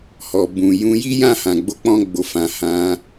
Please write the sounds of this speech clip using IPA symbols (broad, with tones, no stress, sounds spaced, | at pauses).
h ɔ˨ b ũ˨ j ũ˧ j i˦ j ã˦˨ h ã˨ ɡ͡b o˧ k͡p ɔ̃˧ ɡ͡b o˨ f ã˨ h ã˧